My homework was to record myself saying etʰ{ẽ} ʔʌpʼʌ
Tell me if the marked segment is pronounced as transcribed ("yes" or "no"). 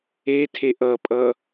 no